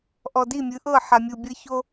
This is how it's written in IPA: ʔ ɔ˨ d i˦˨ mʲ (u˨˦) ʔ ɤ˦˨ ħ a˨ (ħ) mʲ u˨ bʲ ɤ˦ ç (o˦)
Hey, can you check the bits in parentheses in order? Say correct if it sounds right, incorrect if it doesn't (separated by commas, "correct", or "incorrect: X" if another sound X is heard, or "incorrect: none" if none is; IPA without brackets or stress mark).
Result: incorrect: ɯ˨˦, incorrect: none, correct